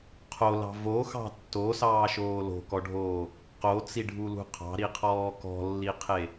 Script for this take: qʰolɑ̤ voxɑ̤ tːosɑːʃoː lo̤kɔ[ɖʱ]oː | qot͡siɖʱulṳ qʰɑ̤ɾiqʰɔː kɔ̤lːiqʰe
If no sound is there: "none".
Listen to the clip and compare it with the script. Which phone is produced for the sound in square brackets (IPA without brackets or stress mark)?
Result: ɖʱ